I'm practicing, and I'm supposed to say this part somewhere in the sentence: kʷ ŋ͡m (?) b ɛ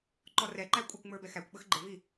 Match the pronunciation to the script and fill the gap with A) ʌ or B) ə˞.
B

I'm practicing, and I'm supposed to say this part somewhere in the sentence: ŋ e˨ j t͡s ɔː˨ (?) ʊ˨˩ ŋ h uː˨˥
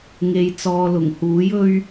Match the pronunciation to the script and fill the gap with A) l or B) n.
A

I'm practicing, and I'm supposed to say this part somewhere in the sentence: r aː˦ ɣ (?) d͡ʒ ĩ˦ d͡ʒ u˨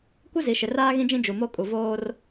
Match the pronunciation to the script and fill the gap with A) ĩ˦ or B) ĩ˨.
A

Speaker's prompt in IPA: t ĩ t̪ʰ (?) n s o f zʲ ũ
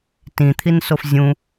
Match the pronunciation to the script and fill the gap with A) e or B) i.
B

